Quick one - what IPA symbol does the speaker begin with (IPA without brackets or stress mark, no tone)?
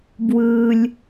b